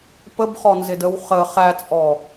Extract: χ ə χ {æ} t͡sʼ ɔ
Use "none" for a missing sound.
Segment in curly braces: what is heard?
æ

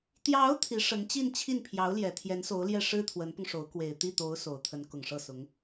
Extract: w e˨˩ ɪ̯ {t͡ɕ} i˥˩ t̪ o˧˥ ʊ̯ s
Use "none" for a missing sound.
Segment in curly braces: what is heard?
t̪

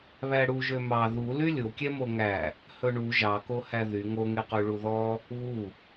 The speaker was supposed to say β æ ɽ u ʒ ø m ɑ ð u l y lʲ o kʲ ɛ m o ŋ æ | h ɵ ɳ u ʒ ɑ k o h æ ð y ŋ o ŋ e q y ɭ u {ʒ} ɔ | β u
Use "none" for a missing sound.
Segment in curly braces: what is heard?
ð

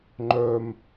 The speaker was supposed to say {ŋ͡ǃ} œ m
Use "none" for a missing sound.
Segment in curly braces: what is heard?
ŋ͡ǃ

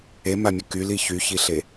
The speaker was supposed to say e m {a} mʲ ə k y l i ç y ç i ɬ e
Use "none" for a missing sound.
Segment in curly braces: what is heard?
a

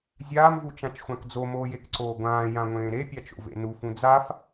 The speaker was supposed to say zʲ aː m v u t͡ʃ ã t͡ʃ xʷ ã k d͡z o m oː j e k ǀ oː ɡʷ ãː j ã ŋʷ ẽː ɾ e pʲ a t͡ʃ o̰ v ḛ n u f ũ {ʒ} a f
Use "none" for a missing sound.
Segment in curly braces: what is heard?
d͡z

